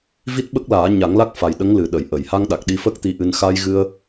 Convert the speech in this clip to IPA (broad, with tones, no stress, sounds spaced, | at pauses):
v i˦˥ t̚ ɓ ə˦˥ k̚ l aː˨˩˦ ɲ a˨˩˦ ŋ l a˦˥ k̚ f a˨˩ j ɗ ə˧˥ ŋ l ɨ˨˩ ɗ ə˨˩˨ j ʔ ə˨˩˨ j h a˧ ŋ ɗ a˨˩ k̚ ɗ i˧ f ə˦˥ k̚ t̪ i˧˥ ʔ ɨ˧ n x a˧ j ɣ ɨ˧ ə̯